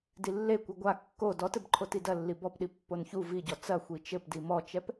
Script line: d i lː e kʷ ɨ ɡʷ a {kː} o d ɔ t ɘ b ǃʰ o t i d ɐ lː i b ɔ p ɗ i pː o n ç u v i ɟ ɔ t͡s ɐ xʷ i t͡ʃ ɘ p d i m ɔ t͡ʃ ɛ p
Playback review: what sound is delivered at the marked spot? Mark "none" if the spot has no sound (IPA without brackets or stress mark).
kː